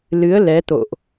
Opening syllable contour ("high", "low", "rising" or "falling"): rising